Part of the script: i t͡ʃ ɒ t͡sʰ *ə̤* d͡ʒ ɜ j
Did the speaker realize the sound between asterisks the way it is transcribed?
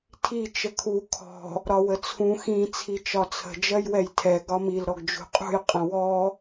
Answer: yes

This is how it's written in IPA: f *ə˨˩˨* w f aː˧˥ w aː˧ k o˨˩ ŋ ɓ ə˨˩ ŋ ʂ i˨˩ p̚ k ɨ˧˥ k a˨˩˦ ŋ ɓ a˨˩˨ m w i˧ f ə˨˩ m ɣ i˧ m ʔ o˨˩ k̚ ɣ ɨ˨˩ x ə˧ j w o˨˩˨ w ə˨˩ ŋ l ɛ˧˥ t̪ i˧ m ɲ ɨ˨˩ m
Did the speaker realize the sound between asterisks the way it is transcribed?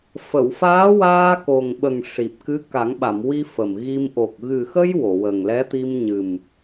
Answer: yes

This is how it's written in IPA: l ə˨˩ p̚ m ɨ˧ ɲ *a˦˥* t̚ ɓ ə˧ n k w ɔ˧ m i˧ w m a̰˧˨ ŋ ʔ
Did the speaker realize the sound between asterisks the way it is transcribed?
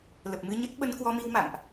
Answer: no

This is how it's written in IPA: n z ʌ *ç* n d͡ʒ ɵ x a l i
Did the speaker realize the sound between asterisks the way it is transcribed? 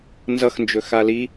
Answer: no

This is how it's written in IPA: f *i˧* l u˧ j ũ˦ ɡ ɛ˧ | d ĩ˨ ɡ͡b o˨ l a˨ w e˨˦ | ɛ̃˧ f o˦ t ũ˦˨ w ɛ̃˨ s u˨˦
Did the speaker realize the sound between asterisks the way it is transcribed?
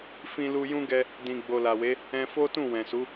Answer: no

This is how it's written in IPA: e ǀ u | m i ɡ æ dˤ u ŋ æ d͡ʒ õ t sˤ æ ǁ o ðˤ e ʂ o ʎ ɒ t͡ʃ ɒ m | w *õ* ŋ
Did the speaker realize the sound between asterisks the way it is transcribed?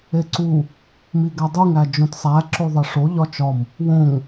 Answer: yes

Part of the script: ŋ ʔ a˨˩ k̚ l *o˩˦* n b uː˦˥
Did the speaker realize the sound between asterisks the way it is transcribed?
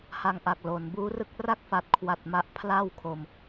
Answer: yes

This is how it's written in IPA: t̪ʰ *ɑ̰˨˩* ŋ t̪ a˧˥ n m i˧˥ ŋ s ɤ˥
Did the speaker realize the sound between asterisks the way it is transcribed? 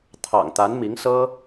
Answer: yes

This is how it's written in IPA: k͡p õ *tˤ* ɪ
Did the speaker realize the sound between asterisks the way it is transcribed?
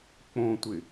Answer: no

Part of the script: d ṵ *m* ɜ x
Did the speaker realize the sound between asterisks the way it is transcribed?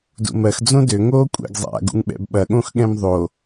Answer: yes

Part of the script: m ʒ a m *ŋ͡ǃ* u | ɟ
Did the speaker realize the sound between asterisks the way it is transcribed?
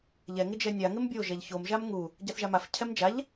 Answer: no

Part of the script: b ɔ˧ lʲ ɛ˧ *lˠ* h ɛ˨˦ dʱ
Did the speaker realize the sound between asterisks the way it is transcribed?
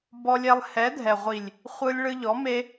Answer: yes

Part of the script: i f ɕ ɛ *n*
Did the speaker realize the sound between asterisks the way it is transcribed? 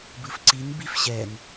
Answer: yes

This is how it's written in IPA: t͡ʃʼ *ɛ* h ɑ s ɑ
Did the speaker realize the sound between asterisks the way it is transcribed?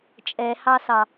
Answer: yes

